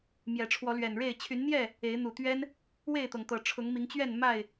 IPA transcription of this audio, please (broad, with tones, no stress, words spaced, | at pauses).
mjɛ˨˩ʈ͡ʂʰwɔ˨˦lɥɛ˨˩nɻe˥˨ɪ̯ t͡ɕʰy˨˦nn̪jɛ˥˨ | e˨˦ɪ̯n̪u˨˩t̪ɥɛ˦n | we˥˨ɪ̯t̪ɤ˩ŋt̪ɤ˨˩ ʈ͡ʂʰʊ˨˦ŋmi˨˦ŋt͡ɕɥɛ˥˨n ma˥˨ɪ̯